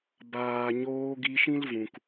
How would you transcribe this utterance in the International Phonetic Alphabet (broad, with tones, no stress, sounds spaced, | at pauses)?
b aː˨ ɲ oː˧ ɡ i˧ ʃ ĩ˦ l v ũ˨ k